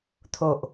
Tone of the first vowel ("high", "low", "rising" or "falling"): low